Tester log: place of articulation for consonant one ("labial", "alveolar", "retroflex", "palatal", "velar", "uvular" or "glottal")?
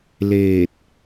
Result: alveolar